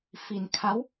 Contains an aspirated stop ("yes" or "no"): yes